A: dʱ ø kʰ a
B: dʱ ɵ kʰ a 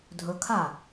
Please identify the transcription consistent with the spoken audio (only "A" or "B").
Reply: B